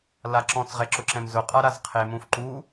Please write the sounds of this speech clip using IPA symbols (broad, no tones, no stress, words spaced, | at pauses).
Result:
laǁɔ̃t͡sʁɛ ǁʊǁɛ̃mzʊqʼa ɾazqʰemũf ǃu